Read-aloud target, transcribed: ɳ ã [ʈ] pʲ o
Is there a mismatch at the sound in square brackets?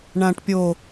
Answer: no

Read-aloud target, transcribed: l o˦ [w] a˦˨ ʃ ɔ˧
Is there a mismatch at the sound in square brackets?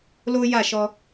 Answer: yes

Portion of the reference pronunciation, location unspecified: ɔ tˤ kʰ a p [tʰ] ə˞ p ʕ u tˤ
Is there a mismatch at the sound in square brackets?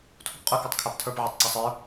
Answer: no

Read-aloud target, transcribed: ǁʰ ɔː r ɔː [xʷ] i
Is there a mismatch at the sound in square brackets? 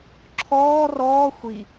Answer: no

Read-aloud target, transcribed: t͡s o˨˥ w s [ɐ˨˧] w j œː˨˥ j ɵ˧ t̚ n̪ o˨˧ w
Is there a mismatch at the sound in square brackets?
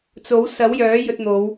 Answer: yes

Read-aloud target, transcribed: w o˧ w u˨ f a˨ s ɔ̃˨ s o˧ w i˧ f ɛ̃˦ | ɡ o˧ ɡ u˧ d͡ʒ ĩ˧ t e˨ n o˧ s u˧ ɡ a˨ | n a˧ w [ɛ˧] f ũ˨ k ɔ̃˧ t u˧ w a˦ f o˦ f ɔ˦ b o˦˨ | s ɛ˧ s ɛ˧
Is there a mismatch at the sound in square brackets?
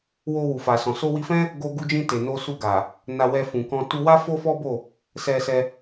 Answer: no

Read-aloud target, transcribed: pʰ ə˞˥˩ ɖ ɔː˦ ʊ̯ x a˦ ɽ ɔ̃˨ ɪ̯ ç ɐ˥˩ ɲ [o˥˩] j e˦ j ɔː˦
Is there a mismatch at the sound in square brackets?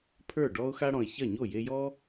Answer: no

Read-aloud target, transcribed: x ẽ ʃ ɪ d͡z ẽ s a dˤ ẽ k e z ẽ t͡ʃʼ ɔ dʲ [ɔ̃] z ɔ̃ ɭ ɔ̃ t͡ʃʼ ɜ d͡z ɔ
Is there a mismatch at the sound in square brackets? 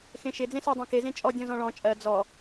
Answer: no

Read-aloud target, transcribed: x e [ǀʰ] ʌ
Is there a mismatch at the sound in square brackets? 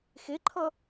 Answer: yes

